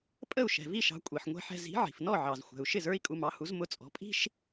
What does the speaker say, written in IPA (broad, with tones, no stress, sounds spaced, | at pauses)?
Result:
pʼ ə˥˩ u̯ ʃ ɛ̤˩ v i˥˩ ʃ ɑ̤˩˥ kʷʼ i˩ ħ ŋʷ ɛ̤˧ ħ ɛ̤˧ z i̤˩˥ ʕ i̤˩ f n ɔ˥˩ ʕ ɑ˩ z xʷ ɛ̤˩ u̯ ʃ ɪ˥˩ z ə˞˥ i̯ kʼ u˧ m ɑ˩˥ h u˩˥ z m ʊ˧ t͡sʼ ɔ̤˩˥ pʼ i̤˥ ʃ